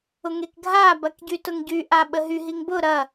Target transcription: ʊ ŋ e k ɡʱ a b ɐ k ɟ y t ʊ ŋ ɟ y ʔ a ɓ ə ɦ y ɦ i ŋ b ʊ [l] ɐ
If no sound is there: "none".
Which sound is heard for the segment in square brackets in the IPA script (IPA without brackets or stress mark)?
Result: ɾ